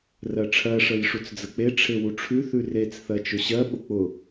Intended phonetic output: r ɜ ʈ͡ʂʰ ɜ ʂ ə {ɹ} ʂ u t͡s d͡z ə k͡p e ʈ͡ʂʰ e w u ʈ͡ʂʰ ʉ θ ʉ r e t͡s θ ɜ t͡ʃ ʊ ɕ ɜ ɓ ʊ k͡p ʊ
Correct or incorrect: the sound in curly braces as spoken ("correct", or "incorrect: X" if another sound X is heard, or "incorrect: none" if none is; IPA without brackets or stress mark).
incorrect: j